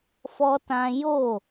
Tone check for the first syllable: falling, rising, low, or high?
high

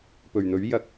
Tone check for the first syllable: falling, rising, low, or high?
low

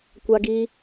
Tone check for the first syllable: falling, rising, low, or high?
high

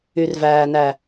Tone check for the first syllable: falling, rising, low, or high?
low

